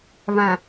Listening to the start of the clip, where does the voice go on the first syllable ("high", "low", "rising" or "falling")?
low